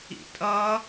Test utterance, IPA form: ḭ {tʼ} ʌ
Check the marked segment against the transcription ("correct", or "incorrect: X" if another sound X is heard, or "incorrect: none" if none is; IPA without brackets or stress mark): correct